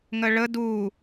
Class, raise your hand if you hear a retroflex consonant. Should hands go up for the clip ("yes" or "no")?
yes